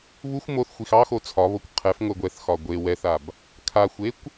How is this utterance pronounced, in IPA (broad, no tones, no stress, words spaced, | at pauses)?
βuxʷ moθxʷix ɑxo t͡sʰɒβokʷ qʰɛfŋʷɛ ɡʷɛθxɒ ɡʷe wɛθab | kʰaxʷekʷ